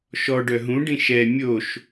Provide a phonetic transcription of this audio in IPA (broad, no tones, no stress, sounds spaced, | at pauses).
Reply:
ʃ ɔ ɖ œ ɦ ũ ɖ ĩ ʃ ɛ mʲ o ʃ